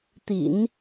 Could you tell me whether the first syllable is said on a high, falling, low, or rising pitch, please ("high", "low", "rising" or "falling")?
low